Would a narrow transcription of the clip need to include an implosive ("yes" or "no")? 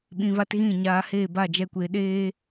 yes